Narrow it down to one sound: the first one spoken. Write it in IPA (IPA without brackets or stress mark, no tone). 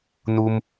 n